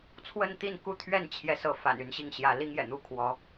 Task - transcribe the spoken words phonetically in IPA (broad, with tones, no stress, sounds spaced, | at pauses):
t͡sʰ w ə˥˧ n t̪ i˥˩ n k u˥ t̪ʰ ɥ ɛ˥˩ n t͡ɕʰ j ɛ˧˥ s ɤ˧˥ f a̰˨˩ n y˧˥ n ɕ i˥˩ ŋ ɕ j ä˧˥ l i˥ ŋ j ɛ̰˨˩ n̪ u˧˥ kʰ w ɔ˧˥